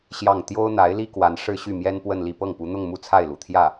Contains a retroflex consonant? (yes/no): yes